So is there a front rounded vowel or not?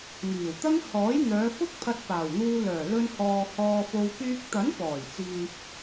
yes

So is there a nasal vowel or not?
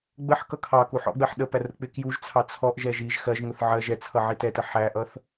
no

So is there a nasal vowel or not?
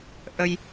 no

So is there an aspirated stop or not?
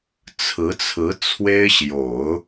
yes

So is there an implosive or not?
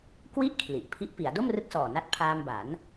no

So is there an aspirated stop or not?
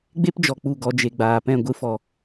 no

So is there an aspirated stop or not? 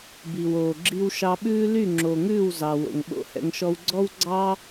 no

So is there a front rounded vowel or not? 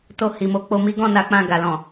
no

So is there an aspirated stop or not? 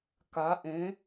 no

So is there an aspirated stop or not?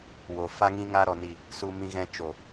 no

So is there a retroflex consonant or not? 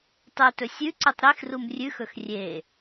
no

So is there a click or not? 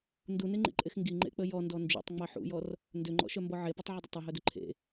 yes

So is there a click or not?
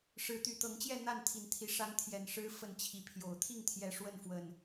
no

